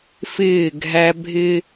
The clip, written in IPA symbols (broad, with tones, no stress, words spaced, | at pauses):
fɪː˦˨ɡʱæ˦ bʱɪ˦